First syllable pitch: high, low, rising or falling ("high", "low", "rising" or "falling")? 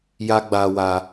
high